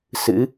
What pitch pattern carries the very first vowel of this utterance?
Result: rising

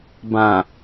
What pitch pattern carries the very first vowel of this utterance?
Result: low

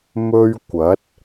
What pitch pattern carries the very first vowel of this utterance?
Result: high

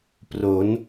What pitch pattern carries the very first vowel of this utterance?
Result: rising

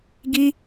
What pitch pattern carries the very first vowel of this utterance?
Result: high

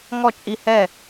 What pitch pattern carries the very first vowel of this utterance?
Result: falling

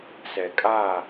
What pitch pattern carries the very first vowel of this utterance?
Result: low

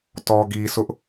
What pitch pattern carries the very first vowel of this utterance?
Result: low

